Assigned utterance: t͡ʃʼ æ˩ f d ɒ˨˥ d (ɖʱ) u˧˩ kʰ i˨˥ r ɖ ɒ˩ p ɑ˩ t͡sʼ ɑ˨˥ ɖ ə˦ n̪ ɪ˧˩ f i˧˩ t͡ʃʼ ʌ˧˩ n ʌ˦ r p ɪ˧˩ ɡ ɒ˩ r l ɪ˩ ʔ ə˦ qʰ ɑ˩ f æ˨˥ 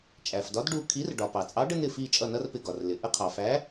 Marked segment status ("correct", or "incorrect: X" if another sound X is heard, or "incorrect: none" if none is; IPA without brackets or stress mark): incorrect: ɖ